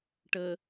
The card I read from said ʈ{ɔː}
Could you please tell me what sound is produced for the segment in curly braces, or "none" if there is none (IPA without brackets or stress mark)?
əː